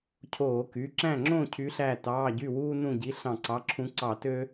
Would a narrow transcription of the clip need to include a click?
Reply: yes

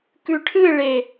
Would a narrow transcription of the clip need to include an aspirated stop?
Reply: yes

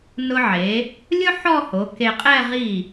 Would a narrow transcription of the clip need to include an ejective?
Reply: yes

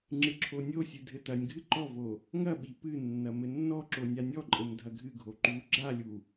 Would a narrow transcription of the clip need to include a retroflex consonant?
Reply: no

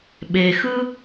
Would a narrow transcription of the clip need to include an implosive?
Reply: yes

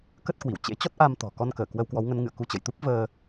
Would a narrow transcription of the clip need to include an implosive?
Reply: no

